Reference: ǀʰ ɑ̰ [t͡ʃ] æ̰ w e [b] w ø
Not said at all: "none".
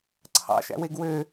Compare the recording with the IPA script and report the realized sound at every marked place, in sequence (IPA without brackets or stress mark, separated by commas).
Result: ʃ, ɡ